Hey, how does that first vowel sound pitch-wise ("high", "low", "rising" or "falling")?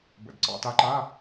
low